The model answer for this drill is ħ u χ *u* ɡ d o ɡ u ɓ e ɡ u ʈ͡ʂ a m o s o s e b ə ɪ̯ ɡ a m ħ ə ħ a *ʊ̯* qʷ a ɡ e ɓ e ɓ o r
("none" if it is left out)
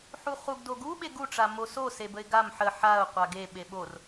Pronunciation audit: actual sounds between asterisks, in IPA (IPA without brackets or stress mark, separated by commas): u, ʊ̯